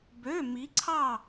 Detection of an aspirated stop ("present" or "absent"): present